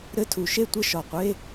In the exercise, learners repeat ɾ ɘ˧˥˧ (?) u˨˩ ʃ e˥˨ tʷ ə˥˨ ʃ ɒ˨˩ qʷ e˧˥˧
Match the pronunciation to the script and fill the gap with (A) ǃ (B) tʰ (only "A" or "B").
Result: B